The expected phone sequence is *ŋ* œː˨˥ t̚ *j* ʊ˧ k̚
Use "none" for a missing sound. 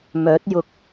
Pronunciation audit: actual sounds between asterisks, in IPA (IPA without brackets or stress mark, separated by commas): m, j